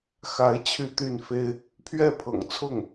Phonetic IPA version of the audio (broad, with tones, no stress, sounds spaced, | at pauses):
x a˧˥ ɪ̯ t͡ɕʰ y˥˧ t̪ y˥˩ n f e˥ ɪ̯ | pʰ ɥ ɛ˥˩ pʰ ɤ̰˨˩ ŋ t͡sʰ ʊ˥˩ ŋ